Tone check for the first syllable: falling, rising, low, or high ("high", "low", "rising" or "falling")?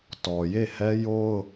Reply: low